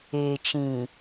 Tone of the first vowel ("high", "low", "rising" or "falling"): low